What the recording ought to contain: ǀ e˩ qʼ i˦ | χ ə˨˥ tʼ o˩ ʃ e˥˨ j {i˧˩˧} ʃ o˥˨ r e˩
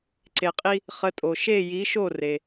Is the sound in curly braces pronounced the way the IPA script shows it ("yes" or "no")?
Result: no